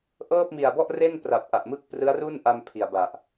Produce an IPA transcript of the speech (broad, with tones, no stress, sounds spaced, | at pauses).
ʔ ɤː˥˩ p̚ m i˨˩ a̯ b ɔ˥˩ ʔ r e˥˩ n p r a˨˩ p̚ ʔ a˨˩ ʔ m ɯ˦˥ k̚ p r ɯ˦˥ a̯ r u˥˩ n ʔ a˧ m pʰ i˨˩ a̯ b a˨˩ ʔ